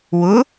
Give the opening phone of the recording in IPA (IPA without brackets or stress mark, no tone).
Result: w